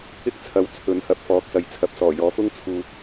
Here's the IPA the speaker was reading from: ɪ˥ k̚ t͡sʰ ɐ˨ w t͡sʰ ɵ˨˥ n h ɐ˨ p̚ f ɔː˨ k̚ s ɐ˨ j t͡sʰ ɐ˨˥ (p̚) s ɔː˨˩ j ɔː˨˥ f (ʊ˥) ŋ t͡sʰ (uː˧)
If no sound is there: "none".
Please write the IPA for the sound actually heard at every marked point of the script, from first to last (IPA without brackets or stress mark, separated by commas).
p̚, ʊ˥, uː˨